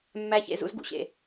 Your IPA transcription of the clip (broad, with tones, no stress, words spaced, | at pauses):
mːæ˦çḛ˧ zṵ˦zɡṵ˧ɕḛ˨